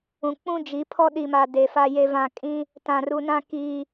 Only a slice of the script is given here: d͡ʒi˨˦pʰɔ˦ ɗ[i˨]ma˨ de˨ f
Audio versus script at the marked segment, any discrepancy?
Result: no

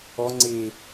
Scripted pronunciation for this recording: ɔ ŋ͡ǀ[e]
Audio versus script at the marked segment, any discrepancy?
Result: no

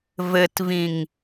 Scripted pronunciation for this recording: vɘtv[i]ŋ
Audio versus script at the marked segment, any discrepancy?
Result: yes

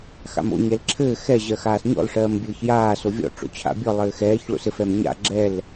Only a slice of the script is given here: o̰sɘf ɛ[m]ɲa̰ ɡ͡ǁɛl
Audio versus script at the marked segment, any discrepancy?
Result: no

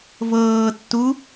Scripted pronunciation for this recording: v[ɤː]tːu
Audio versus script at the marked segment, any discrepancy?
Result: no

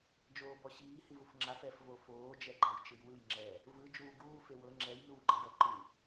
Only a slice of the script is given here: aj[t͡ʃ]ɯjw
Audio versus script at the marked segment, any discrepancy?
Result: no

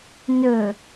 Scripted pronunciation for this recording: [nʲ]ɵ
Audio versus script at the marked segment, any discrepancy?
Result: yes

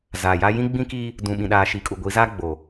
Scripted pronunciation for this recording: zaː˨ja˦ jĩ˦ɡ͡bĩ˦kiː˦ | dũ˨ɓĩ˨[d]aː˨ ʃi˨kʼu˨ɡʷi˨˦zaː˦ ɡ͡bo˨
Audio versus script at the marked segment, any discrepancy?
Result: yes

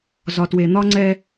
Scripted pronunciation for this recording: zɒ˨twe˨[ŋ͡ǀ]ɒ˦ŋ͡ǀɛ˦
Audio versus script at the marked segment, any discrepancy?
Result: yes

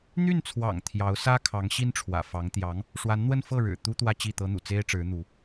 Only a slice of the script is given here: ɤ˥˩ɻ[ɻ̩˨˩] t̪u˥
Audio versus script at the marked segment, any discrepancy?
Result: no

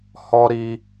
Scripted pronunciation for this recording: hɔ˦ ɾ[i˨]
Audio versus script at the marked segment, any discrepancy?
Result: yes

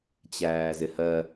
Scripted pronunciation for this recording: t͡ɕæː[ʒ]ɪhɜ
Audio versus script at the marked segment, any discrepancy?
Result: yes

